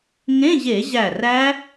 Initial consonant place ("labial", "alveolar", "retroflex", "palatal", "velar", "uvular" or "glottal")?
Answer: velar